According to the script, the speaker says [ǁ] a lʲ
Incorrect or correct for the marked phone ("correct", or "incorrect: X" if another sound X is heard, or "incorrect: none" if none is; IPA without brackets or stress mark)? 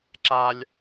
correct